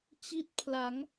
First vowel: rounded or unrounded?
unrounded